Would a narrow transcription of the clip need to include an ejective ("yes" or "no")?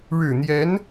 no